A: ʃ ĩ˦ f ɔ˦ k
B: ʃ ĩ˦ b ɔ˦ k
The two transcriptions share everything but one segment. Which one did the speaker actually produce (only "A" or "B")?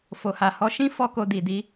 A